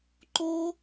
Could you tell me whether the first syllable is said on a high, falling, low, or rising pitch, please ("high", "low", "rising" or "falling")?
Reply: high